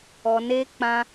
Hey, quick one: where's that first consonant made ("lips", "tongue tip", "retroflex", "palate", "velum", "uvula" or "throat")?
tongue tip